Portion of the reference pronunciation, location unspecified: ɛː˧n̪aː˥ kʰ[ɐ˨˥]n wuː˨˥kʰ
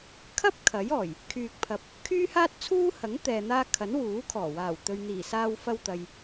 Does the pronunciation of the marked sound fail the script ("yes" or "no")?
no